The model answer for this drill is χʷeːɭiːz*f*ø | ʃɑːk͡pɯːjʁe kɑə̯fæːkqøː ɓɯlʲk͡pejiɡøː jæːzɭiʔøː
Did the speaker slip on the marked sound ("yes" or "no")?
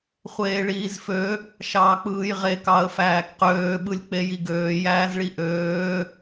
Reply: no